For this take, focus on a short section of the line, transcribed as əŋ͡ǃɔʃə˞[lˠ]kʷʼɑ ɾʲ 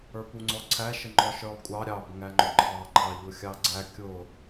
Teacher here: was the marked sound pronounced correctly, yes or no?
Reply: yes